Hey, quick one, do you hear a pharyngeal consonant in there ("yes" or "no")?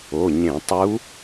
no